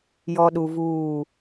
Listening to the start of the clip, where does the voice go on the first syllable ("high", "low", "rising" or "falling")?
high